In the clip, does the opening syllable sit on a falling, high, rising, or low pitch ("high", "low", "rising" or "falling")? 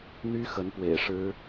high